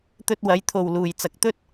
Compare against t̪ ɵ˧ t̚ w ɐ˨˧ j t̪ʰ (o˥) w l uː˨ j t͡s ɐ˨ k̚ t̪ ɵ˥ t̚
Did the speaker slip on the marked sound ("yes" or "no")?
yes